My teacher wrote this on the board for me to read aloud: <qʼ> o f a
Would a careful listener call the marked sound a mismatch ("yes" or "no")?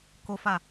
yes